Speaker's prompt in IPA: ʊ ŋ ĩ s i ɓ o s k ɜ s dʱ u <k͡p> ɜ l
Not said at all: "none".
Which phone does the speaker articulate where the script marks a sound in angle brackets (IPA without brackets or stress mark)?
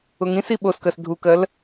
k